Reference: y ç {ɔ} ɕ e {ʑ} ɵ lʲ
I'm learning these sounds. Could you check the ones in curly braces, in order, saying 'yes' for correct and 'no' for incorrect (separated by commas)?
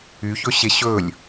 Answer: no, no